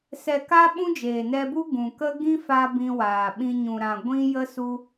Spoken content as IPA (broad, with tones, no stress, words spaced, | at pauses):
sɛ˨ka˧ ɓũ˦d͡ʒeː˨nɛ˧bu˦ ɡũ˨kə˦ ɡĩ˦fa˧ bĩ˧waː˨ɓĩ˧ ɲũ˨ɾã˨ ɡʷĩ˦ jə˦su˦